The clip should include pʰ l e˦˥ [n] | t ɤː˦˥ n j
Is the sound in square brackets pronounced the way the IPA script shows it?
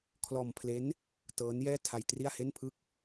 yes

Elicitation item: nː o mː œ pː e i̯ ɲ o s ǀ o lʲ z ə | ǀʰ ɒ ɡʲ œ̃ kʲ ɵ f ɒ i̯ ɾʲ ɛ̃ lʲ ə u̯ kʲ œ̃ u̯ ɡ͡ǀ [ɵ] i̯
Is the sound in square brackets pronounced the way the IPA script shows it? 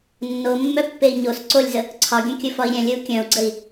no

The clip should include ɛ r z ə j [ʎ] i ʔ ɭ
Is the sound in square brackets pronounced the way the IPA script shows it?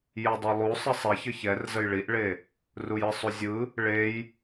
no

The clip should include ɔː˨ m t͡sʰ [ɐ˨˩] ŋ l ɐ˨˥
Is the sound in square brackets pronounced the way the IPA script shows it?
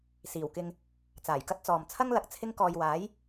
no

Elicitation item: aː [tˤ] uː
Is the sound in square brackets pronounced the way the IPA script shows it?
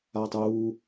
yes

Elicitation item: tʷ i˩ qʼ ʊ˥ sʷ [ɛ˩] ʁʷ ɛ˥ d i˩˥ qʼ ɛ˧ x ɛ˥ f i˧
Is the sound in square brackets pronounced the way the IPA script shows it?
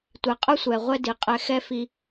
yes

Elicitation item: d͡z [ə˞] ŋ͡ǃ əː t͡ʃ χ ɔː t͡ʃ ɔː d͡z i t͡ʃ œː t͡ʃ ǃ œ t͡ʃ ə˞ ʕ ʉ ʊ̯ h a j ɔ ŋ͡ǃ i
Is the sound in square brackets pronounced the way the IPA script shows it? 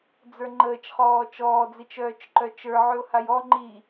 yes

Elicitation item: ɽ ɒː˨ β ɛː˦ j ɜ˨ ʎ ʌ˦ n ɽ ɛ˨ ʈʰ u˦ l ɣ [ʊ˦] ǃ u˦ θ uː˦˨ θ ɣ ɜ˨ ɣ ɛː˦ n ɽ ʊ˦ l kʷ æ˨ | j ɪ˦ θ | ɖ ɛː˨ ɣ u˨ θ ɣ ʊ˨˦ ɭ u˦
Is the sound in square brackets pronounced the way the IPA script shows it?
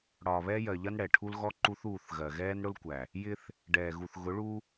no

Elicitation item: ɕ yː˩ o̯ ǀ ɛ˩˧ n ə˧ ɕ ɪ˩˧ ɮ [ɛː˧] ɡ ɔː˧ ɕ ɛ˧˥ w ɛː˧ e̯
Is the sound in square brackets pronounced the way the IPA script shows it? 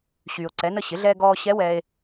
yes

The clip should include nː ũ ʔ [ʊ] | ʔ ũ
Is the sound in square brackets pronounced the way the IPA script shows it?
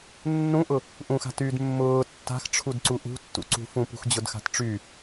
yes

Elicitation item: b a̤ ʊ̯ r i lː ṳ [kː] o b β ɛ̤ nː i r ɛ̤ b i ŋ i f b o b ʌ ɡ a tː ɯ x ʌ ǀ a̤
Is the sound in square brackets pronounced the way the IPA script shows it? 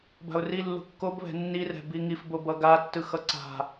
yes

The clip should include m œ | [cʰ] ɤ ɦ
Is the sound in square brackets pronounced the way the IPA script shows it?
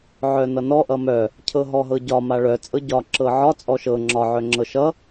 yes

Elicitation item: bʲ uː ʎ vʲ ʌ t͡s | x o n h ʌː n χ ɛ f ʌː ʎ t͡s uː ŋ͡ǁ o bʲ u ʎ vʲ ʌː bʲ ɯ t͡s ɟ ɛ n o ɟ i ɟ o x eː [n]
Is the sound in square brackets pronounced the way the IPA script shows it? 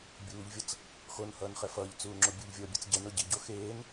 yes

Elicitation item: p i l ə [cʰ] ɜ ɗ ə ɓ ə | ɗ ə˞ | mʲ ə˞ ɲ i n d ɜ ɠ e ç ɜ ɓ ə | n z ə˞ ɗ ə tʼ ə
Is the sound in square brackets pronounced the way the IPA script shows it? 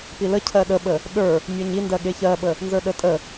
yes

